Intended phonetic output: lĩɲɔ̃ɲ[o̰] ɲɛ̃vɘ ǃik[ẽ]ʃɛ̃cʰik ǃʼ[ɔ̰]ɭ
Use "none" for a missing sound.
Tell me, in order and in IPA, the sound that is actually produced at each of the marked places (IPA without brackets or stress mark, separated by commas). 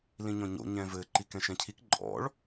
o̰, ɛ̃, ɔ̰